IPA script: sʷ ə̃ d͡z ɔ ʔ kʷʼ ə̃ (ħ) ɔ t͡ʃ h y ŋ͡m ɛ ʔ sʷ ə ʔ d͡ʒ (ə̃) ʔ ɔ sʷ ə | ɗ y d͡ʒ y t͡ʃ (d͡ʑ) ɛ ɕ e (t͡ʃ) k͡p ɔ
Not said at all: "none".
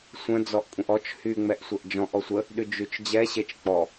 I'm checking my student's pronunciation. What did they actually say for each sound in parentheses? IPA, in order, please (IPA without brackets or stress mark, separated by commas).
ʔ, ɔ̃, d͡ʑ, t͡ʃ